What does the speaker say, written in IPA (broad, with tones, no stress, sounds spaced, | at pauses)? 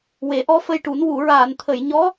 w e˨˩˦ ʔ ɔ˧˥ f ə˧ j ʈ u˨˩˦ n w u˨˩˨ ɹ aː˨˩˨ n t̪ʰ ə˨˩˨ j ɲ ɔ˧˥